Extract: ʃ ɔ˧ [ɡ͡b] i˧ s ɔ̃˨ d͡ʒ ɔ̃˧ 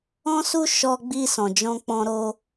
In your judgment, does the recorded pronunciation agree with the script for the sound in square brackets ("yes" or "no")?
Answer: yes